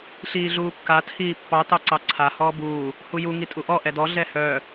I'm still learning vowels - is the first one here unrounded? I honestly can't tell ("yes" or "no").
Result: yes